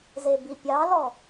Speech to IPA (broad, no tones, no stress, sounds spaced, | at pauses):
z e b i pʲ ɑ l ɔ